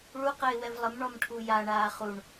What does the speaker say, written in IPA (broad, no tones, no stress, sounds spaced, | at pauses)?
ɭ u q ɘ ɪ̯ w ɛ v lˠ ə m ɳ ɔ m ʈʰ u j a ɳ aː χ u ɳ